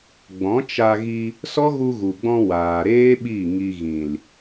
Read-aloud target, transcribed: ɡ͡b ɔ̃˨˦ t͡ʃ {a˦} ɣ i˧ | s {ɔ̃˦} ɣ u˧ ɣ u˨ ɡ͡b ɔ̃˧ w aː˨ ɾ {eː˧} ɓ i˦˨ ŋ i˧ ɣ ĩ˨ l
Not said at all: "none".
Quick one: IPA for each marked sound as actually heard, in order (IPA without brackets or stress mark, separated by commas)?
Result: a˧, ɔ˦, eː˦